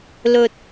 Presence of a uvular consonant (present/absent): absent